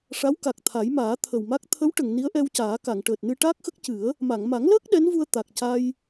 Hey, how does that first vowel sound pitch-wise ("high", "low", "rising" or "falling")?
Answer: rising